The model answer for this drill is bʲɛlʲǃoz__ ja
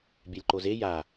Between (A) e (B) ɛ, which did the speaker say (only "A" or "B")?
A